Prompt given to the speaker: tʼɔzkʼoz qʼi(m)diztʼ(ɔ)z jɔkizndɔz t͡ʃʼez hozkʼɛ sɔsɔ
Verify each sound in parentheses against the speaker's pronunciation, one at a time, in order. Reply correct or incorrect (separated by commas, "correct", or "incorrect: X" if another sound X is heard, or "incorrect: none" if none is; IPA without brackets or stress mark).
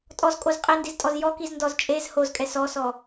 incorrect: n, correct